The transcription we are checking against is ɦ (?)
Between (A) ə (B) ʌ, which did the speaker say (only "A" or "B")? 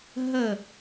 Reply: A